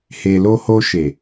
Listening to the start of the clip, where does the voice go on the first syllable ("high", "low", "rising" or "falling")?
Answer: low